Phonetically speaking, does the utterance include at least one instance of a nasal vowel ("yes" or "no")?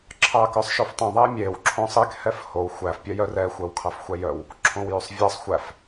yes